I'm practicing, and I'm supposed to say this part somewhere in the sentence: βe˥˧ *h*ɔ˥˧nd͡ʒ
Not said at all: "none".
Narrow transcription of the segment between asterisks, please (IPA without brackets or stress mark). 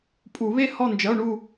h